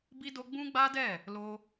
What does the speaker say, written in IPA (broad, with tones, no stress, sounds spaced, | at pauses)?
b i˦ d o˦ ɡ͡b ũ˦ ɡ͡b a˦ d ɛ˦˨ | l o˦